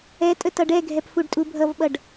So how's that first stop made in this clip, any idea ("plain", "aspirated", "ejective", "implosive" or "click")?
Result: ejective